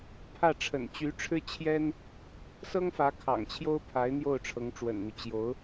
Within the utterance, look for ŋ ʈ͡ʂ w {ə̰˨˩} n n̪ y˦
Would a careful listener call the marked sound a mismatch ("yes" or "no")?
no